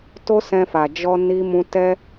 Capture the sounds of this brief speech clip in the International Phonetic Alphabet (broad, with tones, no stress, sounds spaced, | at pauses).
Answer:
t o˦ s ɛ̃˧ f a˨ d͡ʒ ɔ˧ n i˧ m ũ˧ t ɛ˦